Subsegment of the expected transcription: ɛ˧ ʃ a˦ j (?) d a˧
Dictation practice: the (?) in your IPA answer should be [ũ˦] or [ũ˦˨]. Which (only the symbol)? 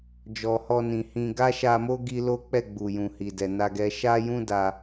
ũ˦